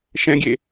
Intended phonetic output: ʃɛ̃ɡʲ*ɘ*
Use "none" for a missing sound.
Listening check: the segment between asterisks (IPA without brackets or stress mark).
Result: e